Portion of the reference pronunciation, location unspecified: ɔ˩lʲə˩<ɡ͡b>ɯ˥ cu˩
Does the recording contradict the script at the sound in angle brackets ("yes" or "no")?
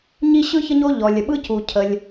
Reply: yes